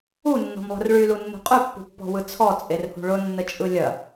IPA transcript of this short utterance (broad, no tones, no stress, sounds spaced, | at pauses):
u nː ɔ̤ m lˠ ə̤ r ɭ y l u nː ṳ qʼ y pː ṳ pː ɔ̤ w ɯ t͡sʰ ɔ t͡sʼ e r h ṳ ɭ ʊ nː ə t͡ʃʼ ɯ lʲ ɐ